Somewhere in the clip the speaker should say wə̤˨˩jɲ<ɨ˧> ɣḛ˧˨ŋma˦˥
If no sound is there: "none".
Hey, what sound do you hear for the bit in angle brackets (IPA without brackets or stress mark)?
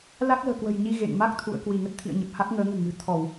i˧